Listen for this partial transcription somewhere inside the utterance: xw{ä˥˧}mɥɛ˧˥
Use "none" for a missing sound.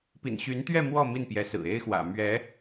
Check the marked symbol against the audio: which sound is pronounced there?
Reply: ä̰˨˩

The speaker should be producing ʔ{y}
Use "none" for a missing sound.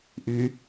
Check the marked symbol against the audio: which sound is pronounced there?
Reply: y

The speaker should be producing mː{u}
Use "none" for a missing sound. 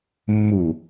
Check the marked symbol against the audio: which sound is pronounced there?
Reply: u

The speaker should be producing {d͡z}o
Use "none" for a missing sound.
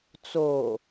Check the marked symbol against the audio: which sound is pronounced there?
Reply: t͡s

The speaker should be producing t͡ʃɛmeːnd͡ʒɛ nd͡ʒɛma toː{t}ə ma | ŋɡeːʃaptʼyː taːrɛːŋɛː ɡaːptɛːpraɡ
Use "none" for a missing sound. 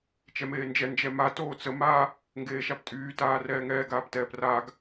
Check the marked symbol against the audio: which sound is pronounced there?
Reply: t͡s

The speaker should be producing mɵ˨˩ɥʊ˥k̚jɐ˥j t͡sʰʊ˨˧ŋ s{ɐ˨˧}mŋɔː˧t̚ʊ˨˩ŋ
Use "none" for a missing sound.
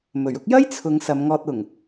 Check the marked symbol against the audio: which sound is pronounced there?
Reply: ɐ˨˧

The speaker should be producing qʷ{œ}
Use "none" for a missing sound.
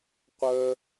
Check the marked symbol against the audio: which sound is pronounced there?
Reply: œ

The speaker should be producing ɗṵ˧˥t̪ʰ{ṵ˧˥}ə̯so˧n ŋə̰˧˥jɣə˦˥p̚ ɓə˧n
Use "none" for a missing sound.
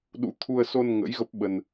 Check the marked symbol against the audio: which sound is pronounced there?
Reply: u˧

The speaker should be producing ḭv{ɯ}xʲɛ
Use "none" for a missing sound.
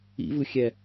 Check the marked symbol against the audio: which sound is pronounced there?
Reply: ɯ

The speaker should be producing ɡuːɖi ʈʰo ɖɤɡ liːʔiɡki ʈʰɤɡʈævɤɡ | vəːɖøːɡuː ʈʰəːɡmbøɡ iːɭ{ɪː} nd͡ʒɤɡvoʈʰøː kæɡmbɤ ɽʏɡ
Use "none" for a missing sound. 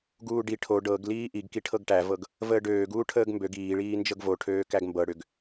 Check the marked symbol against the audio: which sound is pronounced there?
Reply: iː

